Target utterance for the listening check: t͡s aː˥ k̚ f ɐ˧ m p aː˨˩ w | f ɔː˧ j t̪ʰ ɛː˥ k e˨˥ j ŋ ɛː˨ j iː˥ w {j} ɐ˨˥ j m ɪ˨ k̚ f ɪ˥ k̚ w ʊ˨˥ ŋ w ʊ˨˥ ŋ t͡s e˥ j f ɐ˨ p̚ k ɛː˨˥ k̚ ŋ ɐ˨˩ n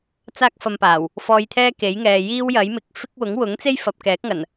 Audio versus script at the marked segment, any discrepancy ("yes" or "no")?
no